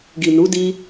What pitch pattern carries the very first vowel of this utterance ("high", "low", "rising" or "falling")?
low